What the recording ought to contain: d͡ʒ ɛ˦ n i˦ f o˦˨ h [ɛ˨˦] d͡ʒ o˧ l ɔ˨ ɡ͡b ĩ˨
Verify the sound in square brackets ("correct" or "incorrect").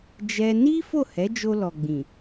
correct